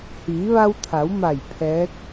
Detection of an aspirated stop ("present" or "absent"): present